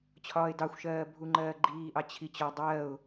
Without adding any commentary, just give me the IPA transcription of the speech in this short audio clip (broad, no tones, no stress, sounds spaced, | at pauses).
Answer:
t͡ɕʰ ɒː ɪ̯ d ɑ xʷ ʃ ɜː bʱ u ŋ͡ǃ ɜː ɡ͡ǃ iː ʔ ɑ t͡ɕʰ i t͡ɕ ɒ dˤ ɜː ʊ̯